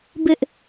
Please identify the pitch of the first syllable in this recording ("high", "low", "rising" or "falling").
high